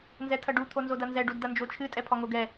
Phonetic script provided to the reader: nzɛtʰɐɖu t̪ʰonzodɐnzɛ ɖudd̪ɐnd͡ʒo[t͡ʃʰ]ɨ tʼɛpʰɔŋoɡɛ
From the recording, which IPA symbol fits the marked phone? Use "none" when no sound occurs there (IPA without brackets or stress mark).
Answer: t͡ʃʰ